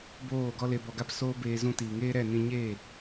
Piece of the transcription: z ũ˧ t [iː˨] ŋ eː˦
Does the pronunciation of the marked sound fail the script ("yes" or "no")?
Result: no